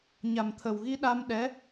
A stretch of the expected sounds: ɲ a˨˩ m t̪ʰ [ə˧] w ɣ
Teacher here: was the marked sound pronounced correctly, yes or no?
no